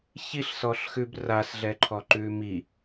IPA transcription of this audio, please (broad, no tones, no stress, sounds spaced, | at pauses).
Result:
ç i ɬ s ɔ ɬ x ʉ b r a s ɮ ɛ ǃʰ ɔ ǃ ʉ m i